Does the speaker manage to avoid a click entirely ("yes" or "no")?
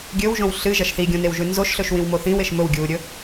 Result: yes